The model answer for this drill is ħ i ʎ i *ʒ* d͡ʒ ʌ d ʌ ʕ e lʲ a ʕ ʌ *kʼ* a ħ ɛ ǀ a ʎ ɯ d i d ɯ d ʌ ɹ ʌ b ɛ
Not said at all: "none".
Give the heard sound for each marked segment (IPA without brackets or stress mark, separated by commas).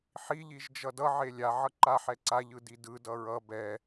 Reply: ʒ, ǃ